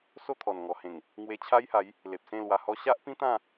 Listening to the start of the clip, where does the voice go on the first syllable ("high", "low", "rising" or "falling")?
falling